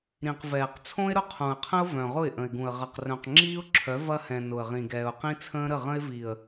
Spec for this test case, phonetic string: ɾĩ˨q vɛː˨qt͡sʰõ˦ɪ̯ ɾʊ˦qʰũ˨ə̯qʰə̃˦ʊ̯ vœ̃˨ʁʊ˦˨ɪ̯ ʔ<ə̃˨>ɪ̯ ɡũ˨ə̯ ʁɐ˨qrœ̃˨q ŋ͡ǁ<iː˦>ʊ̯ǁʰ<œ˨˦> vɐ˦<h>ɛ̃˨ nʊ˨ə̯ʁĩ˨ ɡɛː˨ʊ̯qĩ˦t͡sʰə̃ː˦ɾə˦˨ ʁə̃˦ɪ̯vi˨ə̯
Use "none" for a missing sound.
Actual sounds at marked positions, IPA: ə̃˨, iː˦, œ˨˦, h

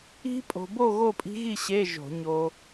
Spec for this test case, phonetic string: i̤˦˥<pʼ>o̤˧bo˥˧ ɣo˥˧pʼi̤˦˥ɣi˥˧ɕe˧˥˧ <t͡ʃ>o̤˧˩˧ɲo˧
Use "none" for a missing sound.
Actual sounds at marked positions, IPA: pʼ, ʒ

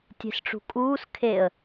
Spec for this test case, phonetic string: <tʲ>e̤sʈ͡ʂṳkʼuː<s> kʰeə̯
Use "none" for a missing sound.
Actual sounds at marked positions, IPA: tʲ, s

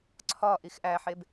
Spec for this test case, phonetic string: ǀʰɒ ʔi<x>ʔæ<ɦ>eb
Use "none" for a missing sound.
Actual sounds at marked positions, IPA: x, ħ

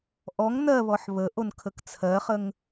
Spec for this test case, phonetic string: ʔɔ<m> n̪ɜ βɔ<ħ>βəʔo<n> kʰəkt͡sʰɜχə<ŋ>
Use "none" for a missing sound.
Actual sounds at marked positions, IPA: ŋ, ħ, n, ŋ

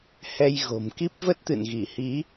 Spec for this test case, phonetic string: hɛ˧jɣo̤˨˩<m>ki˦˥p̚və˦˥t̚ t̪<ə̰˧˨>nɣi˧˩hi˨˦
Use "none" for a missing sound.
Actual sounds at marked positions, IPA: m, ɨ̰˧˨

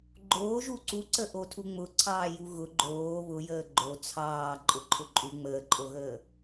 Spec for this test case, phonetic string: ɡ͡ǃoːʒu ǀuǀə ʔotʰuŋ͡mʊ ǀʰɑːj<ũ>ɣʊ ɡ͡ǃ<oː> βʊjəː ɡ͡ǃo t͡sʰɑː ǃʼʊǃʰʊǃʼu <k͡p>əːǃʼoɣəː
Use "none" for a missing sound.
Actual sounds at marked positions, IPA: u, oː, ŋ͡m

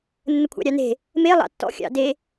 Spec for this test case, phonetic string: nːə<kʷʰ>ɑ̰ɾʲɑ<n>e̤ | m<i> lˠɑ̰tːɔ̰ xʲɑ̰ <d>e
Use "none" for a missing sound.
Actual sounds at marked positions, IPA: kʷʰ, n, e, d

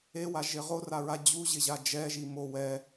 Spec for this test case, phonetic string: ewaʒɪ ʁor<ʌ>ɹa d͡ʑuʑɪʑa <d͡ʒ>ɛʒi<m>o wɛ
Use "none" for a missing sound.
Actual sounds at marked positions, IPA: a, d͡ʒ, m

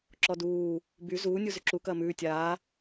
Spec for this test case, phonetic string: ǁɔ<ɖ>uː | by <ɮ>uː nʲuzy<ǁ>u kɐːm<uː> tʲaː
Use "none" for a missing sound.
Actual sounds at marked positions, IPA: d, z, ǁ, ʉː

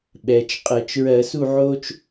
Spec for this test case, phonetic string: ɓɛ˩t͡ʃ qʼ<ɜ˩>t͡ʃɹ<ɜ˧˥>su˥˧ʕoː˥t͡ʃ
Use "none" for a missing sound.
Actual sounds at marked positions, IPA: ɜ˧˩˧, ɜ˧˩˧

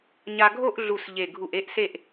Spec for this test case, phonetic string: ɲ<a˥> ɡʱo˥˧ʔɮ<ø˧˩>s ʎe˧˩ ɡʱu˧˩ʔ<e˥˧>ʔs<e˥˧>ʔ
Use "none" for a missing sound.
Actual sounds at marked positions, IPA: a˥, u˧˩, e˥˧, e˥˧

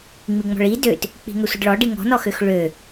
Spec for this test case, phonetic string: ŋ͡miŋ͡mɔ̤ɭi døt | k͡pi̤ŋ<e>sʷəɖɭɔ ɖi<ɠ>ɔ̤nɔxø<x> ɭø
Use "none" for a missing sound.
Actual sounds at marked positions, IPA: ø, ŋ, x

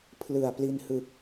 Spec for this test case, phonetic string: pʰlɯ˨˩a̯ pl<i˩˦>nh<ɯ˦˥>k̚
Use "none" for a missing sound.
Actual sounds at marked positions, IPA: i˧, ɯ˨˩

